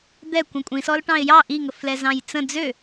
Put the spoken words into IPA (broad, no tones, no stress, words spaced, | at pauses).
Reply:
d̪ɛ kʷĩkʷʼĩsɔl ʈɑ̃ɪ̯jɑ ʔiŋəflɛ zɑ̃jt͡sə̃ d͡zø